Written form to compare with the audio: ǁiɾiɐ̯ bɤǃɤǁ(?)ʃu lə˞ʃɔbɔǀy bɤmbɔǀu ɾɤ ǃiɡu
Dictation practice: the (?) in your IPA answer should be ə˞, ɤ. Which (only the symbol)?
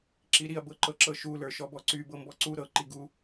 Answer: ɤ